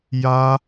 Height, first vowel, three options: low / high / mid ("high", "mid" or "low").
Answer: low